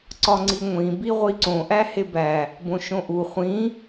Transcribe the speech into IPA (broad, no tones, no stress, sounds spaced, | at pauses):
ǀ ɒ ŋ͡ǀ i ŋʷ ĩ b i ʁʷ i ǀ õ ʔ æ h e b æ | b õ ʃ õ ʔ u χʷ ĩ